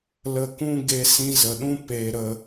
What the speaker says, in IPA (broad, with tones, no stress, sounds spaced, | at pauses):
l ə˧ k ũ˦ ɡ e˧ s ĩ˧ z ə˨ ɗ ũ˦ p e˦ ɾ ə˧